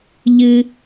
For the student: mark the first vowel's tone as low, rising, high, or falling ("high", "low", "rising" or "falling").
high